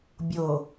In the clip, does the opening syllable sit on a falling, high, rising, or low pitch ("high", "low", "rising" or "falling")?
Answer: low